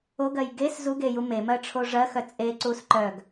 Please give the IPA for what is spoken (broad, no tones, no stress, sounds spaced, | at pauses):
o ɡ ɜ j ɡ e s z u ɡ e j u m e m ɜ ʈ͡ʂʰ o ʐ ɜ x œ t͡sʼ e ǀ u s ǃ œ ɡ